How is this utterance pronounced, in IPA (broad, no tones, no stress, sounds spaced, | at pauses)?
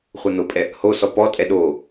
χʷ ɤ n o pʼ ɛ | h o s ɔ p ɔ tʼ ɛ ɗ o